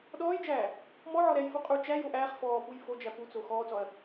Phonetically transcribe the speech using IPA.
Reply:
ɗɔːjd͡ʒæː | mɔʕɔ ɾɛjfu qʼu t͡ʃæ joʔ æːχ fɔːpuj fod͡ʒæ put͡so xɔːt͡sɔɐ̯

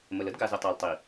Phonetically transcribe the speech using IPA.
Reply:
mə˨l ə˦dɡa˨zɘ˨ tˤa˨ltˤi˨

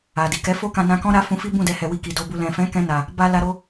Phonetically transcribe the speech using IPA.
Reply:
a˨ di˨kɛ˨˦fo˦kã˧ nã˧kɔ̃˦ ɾa˧ fũ˧fi˦ bũ˦˨dɛ˧hɛ˨ wi˧ki˨do˧bu˧ lɛ̃˨fɛ̃˨˦ kɛ̃˧na˨ | ba˦ la˧ɾo˧

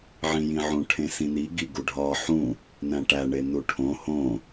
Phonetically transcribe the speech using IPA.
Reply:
ʕĩjĩʕũ ʈʰẽsĩni ɡiɡuɖʱɒ ħũ | næ̃ʈæ ɳenuʈʰõ hõ

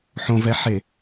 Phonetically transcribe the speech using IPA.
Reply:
ħõvɛħe

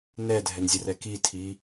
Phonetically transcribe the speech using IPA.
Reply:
nɛdʱɛnzʲərɛ kitʰi

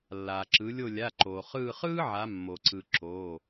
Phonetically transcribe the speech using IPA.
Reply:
lːaː˩ǁɯ˩˧ lʲo˧˩lʲa˩˧˩ǃoː˩ χɯː˧˩χɯː˥ʕa˩˧ mːo˩ǀɯ˩ ǁoː˩˧˩

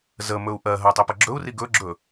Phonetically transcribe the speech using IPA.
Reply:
zə mɵu̯ʔɜɦɜ tˤipəɡ͡ǁɵu̯ri ɡɵɡ͡ǁɵ

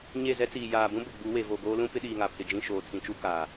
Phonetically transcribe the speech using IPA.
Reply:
ɲe˦˨zɛ˦t͡siː˨ jaː˨bũ˦ bʊ˨ɡ͡bu˨˦we˨vo˨ ɡoː˦lũ˦ pɪ˦ɗiː˨ŋa˨pʰɪ˨ d͡ʒĩ˦˨ʃoː˨tʰĩ˨t͡ʃu˦ kaː˨

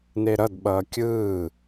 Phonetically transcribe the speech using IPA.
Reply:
neɾʌdɓʌː kʲɯː

